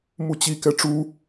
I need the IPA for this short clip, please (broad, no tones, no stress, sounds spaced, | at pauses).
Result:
m u t͡ɕ i k ɛ ʈ͡ʂ u